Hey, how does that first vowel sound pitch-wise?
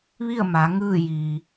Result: falling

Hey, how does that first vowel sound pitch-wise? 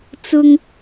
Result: high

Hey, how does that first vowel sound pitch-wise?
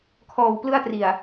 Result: low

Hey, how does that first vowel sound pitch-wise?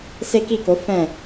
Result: high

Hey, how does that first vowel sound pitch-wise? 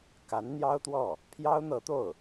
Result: rising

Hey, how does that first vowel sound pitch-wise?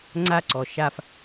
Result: high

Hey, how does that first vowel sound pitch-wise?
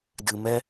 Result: low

